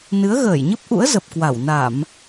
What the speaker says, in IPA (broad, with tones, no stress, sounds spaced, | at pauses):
n ɨ˨˦ ə̯ ɣ əː˧˩ j ɲ ə˦˥ p̚ ʔ ṵ˧˥ ə̯ z ə˨˩ p̚ k w a˧˩ w n a˧˩˨ m